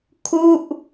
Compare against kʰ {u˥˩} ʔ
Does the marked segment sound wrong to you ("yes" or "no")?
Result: no